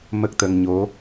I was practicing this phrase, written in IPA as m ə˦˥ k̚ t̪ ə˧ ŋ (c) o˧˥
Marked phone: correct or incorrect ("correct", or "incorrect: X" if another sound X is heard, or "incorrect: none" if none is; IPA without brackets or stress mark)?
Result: incorrect: ɲ